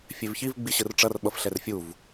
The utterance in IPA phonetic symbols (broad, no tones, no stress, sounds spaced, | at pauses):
fʲ e v ç i v ɡ͡b i ɕ ɯ r ʈ͡ʂ ʌ r ɓ ʌ f ɬ ɛ r fʲ u v